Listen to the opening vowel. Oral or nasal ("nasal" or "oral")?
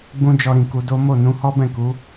nasal